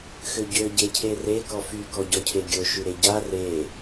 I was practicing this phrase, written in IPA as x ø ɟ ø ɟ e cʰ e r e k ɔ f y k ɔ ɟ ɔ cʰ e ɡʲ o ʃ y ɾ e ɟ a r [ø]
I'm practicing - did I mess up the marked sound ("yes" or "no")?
yes